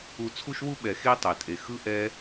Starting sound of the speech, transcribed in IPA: u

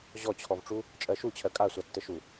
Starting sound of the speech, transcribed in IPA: ʑ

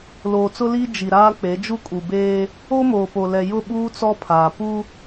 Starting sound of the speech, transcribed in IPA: l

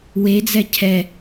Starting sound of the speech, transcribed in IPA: w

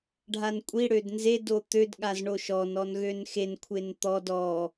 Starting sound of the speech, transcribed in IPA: ɖʱ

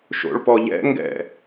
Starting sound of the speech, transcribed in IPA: ʃ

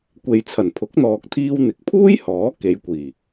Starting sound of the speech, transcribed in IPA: kʷ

